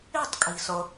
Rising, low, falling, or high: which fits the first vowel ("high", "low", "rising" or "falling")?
falling